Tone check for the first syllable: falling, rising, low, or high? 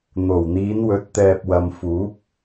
low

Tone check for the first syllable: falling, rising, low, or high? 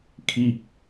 falling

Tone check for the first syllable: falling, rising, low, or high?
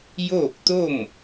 falling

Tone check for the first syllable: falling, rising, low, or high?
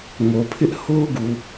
low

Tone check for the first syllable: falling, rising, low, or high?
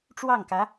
falling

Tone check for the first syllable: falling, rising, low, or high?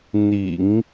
low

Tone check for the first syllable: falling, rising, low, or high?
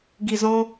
low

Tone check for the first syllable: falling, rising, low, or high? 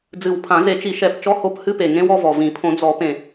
low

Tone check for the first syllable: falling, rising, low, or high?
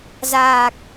low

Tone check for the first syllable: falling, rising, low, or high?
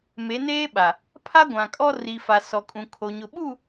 rising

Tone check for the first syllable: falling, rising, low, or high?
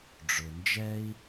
low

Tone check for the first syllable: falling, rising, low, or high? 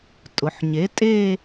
low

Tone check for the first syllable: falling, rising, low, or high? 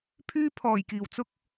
high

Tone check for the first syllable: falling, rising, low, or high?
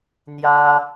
high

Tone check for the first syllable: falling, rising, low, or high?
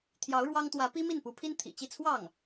rising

